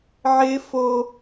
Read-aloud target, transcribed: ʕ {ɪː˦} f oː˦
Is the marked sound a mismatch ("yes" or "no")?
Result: no